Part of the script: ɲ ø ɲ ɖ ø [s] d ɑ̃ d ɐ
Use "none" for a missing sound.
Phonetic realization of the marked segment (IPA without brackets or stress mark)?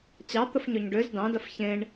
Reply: z